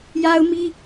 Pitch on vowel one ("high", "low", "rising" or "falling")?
high